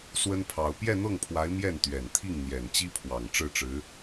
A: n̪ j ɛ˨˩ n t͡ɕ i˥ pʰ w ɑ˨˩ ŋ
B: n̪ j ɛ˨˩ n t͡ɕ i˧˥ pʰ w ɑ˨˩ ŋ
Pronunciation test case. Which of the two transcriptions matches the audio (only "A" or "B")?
A